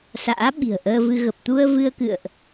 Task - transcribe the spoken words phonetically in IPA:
s a̰ː˧˥ ɓ i̤˨˩ ə̯ ʔ əː˧ v ɨ˧ ɣ ə˨˩ p̚ t̪ u˧ ə̯ v ɨ˧ ə̯ k ɨ̰˧˨ ə̯ ʔ

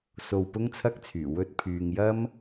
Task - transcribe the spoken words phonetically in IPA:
s o˧ w p ʊ˥ ŋ t͡sʰ ɐ˥ k̚ t͡sʰ yː˨˩ w ɵ˧ t̚ pʰ yː˨ ŋ j ɐ˥ m

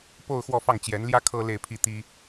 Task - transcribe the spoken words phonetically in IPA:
p o˥˧ ʊ̯ x w ɔ˥˧ f ɑ˥˩ ŋ t͡ɕ j ɛ˧˥ n l j ä˥ kʰ ɤ˥ l e˥˧ ɪ̯ pʰ i˥˩ t̪ i˥

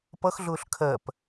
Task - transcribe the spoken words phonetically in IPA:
p ʌ x ɮ ʊː ɬ kʰ ɜ p

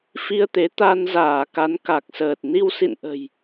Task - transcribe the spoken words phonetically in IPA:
f i˧ ə̯ t̪ e˨˦ t̪ a˧ n z aː˧˩ k a˨˦ n k a˨˩ k̚ s əː˨˩ t̚ n i˧ w s ḭ˧˨ n ʔ ə̤˨˩ j

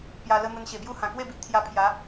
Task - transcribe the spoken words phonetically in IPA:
p j a˧ l ə˦ n̪ ə˧ n ɕ e˨˩ b j u˥˧ h ã˨˩ k w e˥˧ b i˨ ʔ t̪ʰ j a˧ pʰ j a˨˦

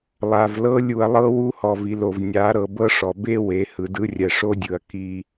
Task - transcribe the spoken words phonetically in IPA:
lˠ a˨ v l ɤ˦ lʲ u˨ ɐ̯ lˠ ɤ˦ w u˦ h ɔ˨ v i˨ l o˨ v nʲ a˨˦ ɾ ɤ˨ b ɤ˦ ʂ ɔ˨ b e˦ w e˨˦ h ɯ˨ d ɯ˦ rʲ ɛ˨ ʂ o˦ dʲ ɯ˨ ɐ̯ k i˦

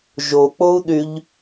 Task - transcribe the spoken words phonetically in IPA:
ʒ o k͡p o u̯ ɗ y ʎ

